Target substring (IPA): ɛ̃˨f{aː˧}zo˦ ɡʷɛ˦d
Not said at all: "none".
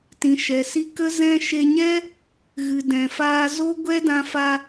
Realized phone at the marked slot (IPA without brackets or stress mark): aː˧